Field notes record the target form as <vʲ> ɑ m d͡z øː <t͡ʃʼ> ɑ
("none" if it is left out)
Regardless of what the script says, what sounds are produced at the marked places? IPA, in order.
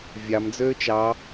vʲ, t͡ʃ

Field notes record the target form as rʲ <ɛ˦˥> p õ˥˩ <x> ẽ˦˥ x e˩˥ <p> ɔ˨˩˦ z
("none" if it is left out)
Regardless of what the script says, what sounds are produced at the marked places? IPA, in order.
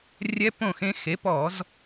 ɛ˦˥, x, p

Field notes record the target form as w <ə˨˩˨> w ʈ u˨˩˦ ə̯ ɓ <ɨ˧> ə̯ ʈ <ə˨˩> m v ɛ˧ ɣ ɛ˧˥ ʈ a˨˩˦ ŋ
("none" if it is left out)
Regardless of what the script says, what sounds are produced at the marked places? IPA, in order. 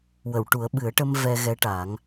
ə˨˩˨, ɨ˨˩˦, ə˧

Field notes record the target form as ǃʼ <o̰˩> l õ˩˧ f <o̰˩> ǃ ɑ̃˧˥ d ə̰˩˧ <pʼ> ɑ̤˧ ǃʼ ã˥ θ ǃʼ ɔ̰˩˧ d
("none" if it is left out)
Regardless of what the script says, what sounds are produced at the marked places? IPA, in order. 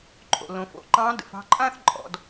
o̰˩, o̰˩, f

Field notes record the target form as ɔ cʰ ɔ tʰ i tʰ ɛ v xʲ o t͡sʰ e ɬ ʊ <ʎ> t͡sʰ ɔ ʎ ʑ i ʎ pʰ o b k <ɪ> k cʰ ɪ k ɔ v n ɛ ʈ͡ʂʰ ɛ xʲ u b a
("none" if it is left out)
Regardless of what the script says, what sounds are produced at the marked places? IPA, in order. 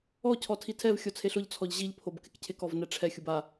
ʎ, ɪ

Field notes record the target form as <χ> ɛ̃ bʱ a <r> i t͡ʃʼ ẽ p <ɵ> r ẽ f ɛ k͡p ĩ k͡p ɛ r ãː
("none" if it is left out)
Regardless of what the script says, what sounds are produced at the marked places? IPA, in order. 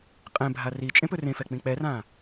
qʼ, r, ɵ

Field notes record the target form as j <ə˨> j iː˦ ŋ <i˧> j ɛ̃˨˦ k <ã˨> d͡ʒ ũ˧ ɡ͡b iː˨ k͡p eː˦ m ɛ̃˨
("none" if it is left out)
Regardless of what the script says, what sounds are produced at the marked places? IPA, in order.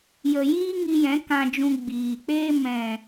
ə˨, i˧, ã˧

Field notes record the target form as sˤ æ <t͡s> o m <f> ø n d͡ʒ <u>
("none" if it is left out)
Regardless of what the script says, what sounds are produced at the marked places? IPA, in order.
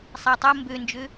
tˤ, b, ø

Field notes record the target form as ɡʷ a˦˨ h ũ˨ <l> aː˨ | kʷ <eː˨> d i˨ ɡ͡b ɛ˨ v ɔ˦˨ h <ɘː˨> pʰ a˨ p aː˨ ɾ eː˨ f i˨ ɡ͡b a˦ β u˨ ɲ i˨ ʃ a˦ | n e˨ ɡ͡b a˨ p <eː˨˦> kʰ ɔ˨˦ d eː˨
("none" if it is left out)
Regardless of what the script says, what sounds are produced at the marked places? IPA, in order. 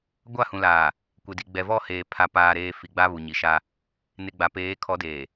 l, e˨, eː˨, eː˨˦

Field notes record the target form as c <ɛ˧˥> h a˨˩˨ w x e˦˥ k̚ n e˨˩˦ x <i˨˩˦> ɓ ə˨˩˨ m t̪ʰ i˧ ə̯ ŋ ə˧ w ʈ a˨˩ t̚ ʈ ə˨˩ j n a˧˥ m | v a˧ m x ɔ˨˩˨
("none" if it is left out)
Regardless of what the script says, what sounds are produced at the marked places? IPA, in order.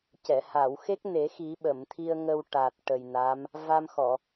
ɛ˨˩˨, i˨˩˦

